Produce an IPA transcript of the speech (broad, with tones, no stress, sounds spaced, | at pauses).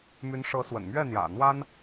m y˧˥ n ʂ ɤ˧˥ s w ə̰˨˩ n m ɥ ɛ˥˩ n̪ j ä̰˨˩ n̪ w a˥ n